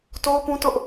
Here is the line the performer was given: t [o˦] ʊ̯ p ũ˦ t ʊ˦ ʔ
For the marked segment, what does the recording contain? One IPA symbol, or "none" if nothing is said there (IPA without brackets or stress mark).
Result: o˦